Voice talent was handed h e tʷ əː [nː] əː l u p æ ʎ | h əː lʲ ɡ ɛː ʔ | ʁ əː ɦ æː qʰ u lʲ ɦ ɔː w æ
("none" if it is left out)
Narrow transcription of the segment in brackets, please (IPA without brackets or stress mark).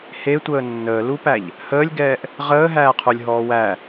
nː